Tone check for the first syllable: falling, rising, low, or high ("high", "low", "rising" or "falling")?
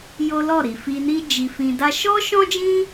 high